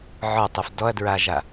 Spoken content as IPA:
ʕɔtˤɪf dɔɐ̯dɹaʒa

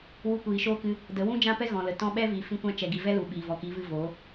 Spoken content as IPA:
wu˧kʷiː˨ʃoː˦kɨ˧ | də˨˦wũ˦d͡ʒã˦pɛ˦ ɣɔ̃˨lə˨ tɔ̃˧ɓɛ˦ vi˨ fĩ˦kʷã˦ t͡ʃɛ˨ɡi˨ vɛ˦lu˨ ɓiː˨vɔ˨ki˨˦vɨ˧ vo˨˦

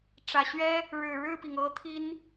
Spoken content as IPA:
ʈ͡ʂä˨˩ɕɥɛ˥ | ɻɻ̩˨˩ɻɻ̩˥˩pi˩ŋ ɤ˥ t̪ʰi˥n

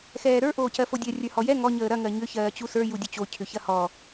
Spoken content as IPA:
xɛːɾə˞ ʔoːcɜfodʲɜ rʲə˞hɔjɛ ŋɔ ɲəːɾɐ ŋɜɲʏ çɜːt͡ɕusə˞ judʲut͡ɕo cʰʏçɐhɔ

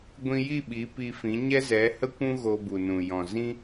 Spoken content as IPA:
ɡʷĩ˧ji˦˨ ɓi˨˦pi˧fĩ˨˦ ɲɛ˦zɛ˨˦hə˦kʷũ˦ ɣo˧bu˨nũ˨ jɔ̃˨zĩ˦

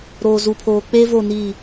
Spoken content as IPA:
ɾoː˨zu˨pʰoː˨ k͡pe˦vo˦˨ni˦˨

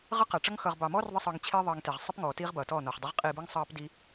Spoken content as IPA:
ʁə˦qæ˨ʈ͡ʂʌ˦ŋ xʌ˨ʁbɑ˨mɔː˦rðˤə˧ sˤʌː˧ŋt͡ɕʰiː˦ ðˤɑ˧ŋtɛ˨ʁ sˤɪ˦p ŋɔː˨tiː˦ʁ bʌː˨tɔː˦˨nɔː˨χdˤɛ˦ʁ qʼiː˧bə˞˦ŋ sˤɑː˦pdi˦

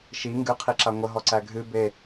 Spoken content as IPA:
ʃi ŋɡɨqʰiǁa ŋʷəɦɔǀæ ɡʱɨ be

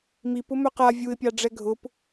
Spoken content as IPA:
mip ʊmœqa vʲuɪ̯pʲɑɖ͡ʐɛ ɡʱʊp

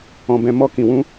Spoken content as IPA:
ɔ̃˧bɛ̃˧ mɔ˧kĩ˨wũ˧

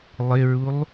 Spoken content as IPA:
lˠɪɹulˠ

